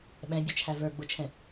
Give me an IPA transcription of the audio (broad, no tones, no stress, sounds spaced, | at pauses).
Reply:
ɓ ɛ̃ bʲ ʊ t͡ʃʰ æ v ə˞ ɡ͡b ʊ t͡ʃʰ ɛ̃